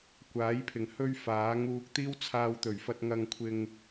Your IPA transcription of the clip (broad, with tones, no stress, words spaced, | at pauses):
kʷaː˨˥jpʰɪ˨˩ŋhɵ˥ɥ faː˨˥ŋuː˧k̚ t̪iː˥wt͡sʰaː˧wt̪ɵ˨˩ɥfɐ˧t̚ ŋɐ˧ŋkʷʰɪ˧ŋ